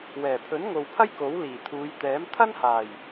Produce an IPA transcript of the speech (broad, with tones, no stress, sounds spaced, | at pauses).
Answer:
w ɛː˨˩ pʰ ɵ˨˥ n ŋ o˨ w pʰ ɐ˥ j k o˨˥ w l iː˨˩ t̪ʰ uː˨˧ j t̪ ɛː˨˥ m t̪ʰ ɐ˥ n h aː˨˩ j